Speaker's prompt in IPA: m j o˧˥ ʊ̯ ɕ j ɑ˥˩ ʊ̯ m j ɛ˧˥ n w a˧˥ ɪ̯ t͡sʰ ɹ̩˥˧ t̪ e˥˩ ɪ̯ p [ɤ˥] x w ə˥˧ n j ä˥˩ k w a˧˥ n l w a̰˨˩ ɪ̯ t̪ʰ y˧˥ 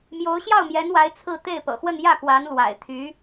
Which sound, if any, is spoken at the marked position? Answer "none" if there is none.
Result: ɤ̰˨˩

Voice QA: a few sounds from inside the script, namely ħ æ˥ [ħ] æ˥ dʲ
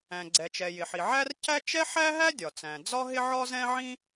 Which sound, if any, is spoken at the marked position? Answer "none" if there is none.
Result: ɦ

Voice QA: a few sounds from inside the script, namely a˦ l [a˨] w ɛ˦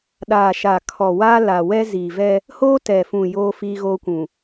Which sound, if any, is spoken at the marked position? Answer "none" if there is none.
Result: a˨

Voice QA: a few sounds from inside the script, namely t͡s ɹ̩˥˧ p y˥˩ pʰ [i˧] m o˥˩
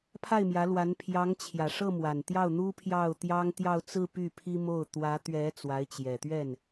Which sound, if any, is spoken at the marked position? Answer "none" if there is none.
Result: i˥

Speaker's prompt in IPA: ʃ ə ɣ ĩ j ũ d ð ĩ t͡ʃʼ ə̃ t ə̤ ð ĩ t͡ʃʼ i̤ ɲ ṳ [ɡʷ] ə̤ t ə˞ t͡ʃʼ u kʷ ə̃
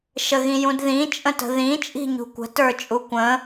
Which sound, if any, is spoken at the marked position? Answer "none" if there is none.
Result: kʷ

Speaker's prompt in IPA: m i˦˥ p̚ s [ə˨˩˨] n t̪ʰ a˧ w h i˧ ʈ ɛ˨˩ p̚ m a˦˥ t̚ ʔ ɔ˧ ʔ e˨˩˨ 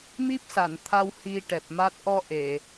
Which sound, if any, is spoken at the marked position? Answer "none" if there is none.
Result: a˨˩˨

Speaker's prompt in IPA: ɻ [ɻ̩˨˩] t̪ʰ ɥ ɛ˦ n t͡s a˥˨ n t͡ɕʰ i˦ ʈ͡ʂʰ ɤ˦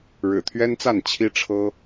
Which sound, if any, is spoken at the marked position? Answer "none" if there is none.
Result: ɻ̩˨˩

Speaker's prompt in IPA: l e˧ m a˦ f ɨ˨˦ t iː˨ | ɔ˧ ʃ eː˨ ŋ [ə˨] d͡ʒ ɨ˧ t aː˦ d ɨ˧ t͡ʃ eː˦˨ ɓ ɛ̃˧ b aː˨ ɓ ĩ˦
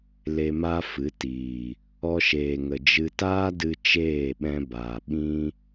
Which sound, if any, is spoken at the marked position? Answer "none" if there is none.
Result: ə˨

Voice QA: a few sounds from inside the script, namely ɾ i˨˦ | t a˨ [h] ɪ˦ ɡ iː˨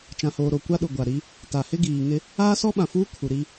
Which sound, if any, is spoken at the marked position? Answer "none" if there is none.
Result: h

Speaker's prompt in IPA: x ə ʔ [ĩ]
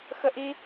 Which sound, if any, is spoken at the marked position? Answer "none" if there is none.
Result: i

